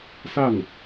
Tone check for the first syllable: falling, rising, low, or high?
falling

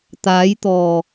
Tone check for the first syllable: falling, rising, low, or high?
rising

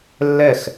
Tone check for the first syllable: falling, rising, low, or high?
falling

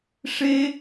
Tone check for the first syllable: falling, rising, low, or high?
high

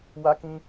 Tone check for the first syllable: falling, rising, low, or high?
high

